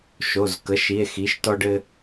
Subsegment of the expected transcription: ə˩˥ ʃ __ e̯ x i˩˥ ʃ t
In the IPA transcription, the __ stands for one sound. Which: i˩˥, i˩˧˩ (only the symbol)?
i˩˧˩